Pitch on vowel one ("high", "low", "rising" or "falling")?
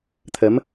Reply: rising